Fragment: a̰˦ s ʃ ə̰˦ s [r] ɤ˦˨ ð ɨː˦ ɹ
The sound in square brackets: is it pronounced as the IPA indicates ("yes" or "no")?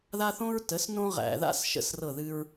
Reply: yes